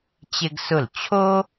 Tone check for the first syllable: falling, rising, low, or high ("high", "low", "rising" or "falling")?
high